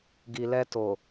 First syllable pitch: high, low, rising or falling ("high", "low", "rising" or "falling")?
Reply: low